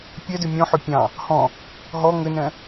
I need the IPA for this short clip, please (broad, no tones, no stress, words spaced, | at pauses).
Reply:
pʲɛdʏ mʲɔ̃ħʏ pʲɑ̃ | hɔ̃ | ɦɔ ŋʏnɛ̃